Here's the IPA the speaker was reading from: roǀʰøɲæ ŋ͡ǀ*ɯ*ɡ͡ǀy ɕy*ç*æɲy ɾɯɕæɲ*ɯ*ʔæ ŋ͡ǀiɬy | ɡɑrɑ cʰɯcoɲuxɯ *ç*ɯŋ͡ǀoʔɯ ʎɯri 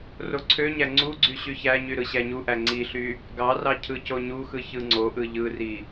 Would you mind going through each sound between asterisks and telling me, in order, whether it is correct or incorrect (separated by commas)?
incorrect, correct, incorrect, correct